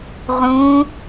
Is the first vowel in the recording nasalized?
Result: yes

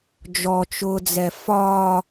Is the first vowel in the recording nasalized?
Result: no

